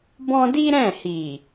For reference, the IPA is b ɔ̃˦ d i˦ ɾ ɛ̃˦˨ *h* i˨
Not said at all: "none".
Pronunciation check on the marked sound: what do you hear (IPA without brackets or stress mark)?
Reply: h